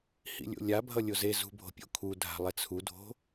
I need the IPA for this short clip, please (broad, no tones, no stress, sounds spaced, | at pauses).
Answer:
h ḭ lʲ o̰ lʲ a bʱ ʌ lʲ o z e z ṳ bʱ o̤ pʲ o̰ kʰ u dʱ a̤ lˠ ɛ t͡sʰ u dʱ o̤